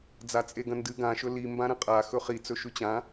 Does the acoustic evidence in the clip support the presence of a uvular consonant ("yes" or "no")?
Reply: yes